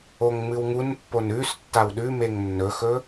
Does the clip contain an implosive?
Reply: yes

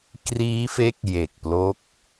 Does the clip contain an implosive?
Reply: no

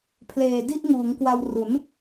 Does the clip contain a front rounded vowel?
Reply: no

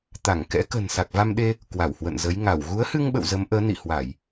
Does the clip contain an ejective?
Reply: no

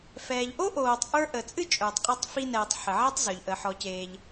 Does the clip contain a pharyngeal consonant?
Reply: yes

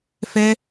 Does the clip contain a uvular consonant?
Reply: no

